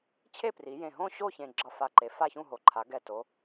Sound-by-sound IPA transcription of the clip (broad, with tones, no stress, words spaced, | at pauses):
t͡ɕʰe˥˨pri˩˧jẽ˨˩ɦõ˥˨ ɕo˥˨çẽ˨˩ ɡ͡ǁʌ˨˩fa˨˩ǃe˩˧ fa˥˨çũ˥˨ɦo˩˧ ǃʰa˩˧ɡɛ˨˩ to˩˧